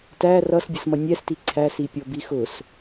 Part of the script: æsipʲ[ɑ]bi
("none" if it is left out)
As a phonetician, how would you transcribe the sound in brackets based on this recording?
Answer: ɔ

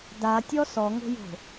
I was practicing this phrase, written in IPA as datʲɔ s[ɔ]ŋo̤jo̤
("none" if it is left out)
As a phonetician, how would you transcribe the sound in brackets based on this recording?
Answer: ɔ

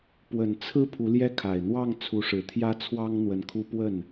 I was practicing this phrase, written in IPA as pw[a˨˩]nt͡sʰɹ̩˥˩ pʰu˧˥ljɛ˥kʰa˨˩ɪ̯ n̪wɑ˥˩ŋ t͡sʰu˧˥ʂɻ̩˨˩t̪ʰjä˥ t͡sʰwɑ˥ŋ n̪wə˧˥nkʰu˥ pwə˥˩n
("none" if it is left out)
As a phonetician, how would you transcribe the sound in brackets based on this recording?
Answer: ə˨˩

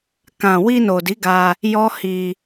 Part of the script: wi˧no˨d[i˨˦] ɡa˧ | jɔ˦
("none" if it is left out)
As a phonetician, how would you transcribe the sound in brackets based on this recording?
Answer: i˨˦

